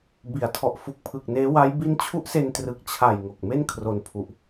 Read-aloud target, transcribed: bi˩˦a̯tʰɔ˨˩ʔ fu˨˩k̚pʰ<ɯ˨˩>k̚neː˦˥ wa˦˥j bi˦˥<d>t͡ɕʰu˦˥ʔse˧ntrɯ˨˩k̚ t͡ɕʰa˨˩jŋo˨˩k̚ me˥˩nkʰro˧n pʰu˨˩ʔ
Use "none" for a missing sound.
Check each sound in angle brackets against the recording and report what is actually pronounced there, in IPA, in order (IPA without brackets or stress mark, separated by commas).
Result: ɯ˨˩, n